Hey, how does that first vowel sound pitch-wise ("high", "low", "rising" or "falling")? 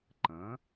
rising